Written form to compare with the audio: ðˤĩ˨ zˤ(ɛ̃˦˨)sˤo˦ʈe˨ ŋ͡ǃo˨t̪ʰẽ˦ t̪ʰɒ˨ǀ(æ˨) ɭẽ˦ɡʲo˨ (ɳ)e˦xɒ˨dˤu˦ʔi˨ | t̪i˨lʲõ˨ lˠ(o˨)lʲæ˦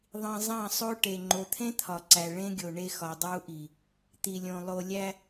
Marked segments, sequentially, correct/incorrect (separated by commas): incorrect, correct, correct, correct